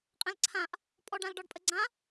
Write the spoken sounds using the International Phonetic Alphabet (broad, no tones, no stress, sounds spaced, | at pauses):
qʼ ɛ̃ l ǀʰ ã ʔ | pʼ ɔ ɖ ã l ɖ ɔ ɖ pʼ ə ɡ͡ǀ ã